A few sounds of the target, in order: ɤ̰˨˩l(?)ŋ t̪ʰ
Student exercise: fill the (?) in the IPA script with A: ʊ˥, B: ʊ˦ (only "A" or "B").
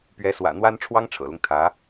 B